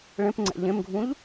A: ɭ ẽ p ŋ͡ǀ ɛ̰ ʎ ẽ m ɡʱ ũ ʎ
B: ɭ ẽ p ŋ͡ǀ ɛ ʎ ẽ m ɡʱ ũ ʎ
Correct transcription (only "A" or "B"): A